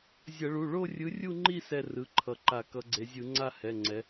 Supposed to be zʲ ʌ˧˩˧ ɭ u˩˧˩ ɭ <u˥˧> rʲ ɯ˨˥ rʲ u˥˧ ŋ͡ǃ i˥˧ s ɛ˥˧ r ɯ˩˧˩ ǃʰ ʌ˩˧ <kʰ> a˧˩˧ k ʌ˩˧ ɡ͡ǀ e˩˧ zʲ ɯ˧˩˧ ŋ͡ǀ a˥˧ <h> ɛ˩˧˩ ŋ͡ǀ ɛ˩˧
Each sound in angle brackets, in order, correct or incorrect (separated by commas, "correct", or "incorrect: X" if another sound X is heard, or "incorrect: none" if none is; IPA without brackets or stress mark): incorrect: o˥˧, incorrect: ǃ, correct